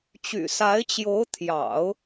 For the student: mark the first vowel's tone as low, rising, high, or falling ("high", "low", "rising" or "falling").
low